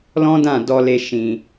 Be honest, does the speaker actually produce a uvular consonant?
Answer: no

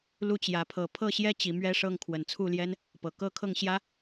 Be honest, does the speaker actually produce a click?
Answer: no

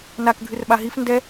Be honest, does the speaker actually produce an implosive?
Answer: yes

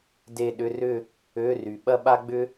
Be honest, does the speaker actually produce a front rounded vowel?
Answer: yes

